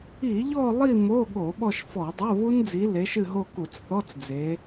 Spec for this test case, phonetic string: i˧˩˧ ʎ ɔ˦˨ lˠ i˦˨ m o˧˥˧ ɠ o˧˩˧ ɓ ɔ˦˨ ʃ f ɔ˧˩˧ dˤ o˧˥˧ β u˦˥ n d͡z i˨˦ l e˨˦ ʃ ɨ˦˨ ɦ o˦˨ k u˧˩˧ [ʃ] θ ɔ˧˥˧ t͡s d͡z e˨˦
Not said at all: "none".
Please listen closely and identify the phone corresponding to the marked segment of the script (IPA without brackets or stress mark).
t͡s